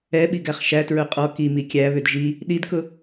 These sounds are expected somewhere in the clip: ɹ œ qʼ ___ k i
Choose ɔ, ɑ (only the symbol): ɔ